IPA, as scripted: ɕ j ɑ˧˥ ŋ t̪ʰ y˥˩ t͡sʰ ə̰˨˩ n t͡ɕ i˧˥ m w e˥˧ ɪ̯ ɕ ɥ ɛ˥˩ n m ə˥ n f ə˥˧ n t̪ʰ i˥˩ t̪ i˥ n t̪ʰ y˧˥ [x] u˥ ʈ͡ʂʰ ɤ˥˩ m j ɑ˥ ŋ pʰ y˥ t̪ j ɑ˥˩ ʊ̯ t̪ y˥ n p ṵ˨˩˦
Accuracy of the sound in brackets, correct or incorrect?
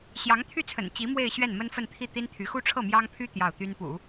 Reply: correct